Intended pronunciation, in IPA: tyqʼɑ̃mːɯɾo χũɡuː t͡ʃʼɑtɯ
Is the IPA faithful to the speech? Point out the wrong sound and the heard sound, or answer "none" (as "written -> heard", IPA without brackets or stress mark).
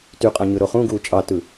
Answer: mː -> ɲ